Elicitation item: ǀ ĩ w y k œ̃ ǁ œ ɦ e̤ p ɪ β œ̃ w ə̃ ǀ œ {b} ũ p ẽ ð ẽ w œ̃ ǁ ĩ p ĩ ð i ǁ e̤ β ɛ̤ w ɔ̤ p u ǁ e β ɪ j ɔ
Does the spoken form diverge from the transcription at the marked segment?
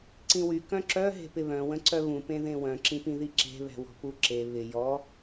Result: yes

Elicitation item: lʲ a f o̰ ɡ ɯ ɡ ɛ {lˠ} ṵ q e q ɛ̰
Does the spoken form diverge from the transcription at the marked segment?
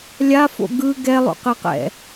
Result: no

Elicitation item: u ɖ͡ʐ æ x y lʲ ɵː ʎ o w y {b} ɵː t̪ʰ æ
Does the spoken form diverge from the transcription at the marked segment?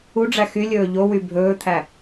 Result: yes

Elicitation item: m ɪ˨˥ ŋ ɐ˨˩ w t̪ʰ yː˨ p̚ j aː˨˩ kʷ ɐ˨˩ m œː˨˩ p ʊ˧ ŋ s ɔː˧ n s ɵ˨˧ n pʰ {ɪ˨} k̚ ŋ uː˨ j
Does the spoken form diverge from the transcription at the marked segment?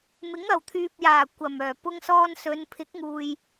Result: yes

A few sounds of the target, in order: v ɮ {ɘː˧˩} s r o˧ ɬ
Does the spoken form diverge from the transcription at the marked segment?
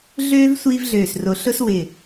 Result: yes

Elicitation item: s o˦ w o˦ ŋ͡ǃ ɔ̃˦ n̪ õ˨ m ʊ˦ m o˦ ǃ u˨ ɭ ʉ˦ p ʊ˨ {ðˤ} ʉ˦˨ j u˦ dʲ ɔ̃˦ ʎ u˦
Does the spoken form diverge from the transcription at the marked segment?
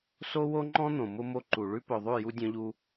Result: no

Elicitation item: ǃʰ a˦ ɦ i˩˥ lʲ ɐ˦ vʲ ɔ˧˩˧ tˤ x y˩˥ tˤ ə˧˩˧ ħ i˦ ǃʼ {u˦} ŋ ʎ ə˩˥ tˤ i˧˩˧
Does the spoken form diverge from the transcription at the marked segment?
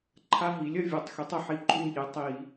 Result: no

